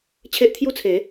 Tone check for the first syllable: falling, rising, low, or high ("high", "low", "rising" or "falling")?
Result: high